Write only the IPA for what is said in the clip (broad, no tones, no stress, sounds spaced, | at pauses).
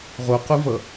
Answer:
ʁ o q u v ʌ